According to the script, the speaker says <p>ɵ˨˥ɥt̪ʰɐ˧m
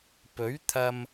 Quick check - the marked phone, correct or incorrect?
correct